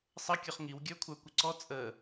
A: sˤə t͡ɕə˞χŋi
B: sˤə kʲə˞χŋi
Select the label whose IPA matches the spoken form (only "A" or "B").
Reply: B